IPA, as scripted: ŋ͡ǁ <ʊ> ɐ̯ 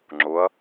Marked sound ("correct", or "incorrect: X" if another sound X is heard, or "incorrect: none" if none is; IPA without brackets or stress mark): correct